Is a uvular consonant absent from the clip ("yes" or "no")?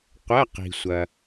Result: no